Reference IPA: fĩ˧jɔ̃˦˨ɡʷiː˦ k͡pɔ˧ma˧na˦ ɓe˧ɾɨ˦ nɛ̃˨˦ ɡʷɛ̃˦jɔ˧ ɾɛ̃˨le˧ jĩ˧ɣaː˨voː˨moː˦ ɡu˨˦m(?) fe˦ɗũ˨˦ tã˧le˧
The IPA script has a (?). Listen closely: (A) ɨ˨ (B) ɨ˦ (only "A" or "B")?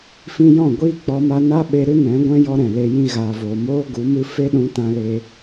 B